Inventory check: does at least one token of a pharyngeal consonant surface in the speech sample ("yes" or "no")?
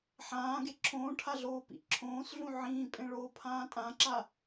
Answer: yes